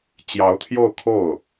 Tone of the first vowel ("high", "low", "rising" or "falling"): rising